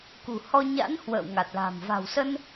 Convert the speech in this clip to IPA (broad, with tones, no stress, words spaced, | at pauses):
kṳ˨˩ hɔ˧ɲa̰˧˥n hwə̰ː˧˨wŋa˨˩t̚la̤˨˩m va̤˨˩wsə˧n